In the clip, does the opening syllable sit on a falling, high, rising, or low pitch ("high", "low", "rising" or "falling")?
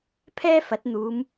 high